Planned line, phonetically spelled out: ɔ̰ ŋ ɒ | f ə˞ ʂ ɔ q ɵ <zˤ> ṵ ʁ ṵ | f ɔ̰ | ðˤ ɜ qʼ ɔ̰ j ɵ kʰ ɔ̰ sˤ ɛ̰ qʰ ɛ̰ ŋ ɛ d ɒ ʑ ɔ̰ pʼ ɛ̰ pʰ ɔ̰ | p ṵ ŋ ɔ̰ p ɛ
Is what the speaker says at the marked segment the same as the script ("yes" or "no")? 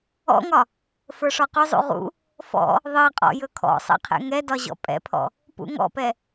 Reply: yes